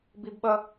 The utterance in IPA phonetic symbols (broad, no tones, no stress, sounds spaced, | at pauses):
b i b ɓ ʌ